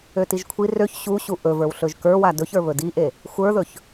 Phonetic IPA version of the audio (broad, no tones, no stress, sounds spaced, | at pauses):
ø t i ʒ kʷʰ i r ø ç ɕ u ɕ u ʔ ɵ v ə˞ w ɬ ɵ ʒ k ə˞ w a d ɵ ç ə˞ β ɵ d i ʔ e | xʷ ə˞ ð ɵ ç